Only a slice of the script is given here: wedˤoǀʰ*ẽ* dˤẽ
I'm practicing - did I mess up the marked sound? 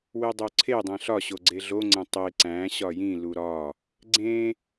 yes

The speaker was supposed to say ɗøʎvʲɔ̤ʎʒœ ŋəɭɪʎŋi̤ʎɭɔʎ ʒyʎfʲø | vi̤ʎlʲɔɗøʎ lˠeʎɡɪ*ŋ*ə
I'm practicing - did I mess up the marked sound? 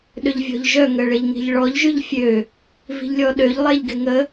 no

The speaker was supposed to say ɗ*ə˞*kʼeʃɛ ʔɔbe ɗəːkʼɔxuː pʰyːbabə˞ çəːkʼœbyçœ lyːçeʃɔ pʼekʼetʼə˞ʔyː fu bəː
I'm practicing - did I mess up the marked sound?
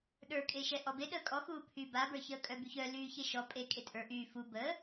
no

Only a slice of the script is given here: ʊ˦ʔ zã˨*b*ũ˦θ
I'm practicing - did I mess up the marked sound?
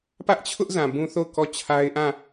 no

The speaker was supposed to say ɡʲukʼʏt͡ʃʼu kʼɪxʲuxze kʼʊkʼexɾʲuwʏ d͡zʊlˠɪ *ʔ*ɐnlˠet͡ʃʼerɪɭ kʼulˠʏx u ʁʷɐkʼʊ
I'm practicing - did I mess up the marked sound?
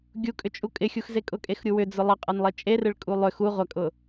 yes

